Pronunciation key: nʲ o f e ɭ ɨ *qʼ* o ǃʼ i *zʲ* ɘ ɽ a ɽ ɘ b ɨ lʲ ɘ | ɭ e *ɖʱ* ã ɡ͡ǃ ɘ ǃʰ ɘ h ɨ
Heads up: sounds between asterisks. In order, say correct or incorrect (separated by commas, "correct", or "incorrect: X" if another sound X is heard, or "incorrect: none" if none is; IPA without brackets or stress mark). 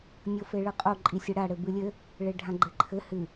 correct, incorrect: sʲ, correct